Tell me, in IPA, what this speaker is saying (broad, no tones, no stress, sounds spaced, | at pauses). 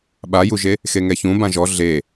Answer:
ɓ a j u ʒ e | x e ŋ ɛ ç ũ b ã ʒ ɔ ɮ e